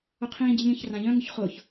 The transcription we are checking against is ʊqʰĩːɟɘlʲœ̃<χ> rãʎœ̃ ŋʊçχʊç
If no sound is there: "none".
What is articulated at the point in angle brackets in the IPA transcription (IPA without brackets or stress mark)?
ç